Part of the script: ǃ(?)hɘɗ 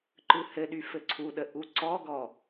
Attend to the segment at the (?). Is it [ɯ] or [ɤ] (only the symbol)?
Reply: ɯ